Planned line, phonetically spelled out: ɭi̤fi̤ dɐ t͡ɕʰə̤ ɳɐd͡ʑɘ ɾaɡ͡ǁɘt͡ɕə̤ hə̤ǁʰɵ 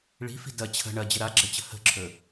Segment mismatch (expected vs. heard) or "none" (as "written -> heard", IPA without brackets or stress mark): none